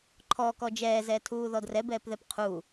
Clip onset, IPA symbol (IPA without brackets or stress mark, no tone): ǃʰ